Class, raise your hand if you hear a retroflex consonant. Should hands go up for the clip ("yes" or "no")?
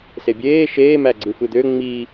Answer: no